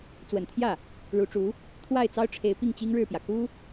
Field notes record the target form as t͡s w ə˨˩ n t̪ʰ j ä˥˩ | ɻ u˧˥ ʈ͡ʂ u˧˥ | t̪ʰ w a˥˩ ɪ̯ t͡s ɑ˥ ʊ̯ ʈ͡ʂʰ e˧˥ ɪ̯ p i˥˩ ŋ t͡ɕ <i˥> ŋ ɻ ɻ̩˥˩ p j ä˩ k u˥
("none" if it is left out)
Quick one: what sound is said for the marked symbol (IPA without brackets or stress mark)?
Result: i˥